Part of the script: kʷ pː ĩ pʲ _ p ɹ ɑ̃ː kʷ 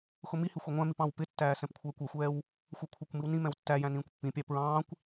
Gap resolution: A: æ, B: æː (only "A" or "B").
A